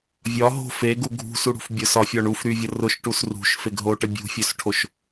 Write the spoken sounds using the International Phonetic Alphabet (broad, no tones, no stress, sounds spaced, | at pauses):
vʲ ɒ ɦ o̤ f e ɡ u ɡʱ ṳ s u ɽ ṳ f bʲ ʊ s ɒ fʲ ɒ ɳ u f ɾ y vʲ ə r ʊ ʃ ʈ u s r ṳ ʃ f e ɡ ɦ o ʈ ə bʲ ṳ fʲ ø s ʈʰ o ʃ